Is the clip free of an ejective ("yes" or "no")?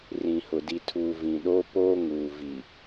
yes